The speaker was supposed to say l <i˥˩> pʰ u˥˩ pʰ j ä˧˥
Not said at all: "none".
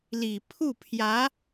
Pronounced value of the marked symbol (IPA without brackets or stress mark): i˨˩